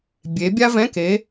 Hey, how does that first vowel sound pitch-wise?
rising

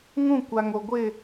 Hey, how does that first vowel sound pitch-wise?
falling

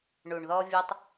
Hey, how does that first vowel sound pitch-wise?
low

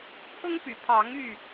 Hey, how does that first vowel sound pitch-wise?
high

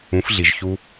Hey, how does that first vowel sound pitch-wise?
rising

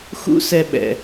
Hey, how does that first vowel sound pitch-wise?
high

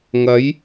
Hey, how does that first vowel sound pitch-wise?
rising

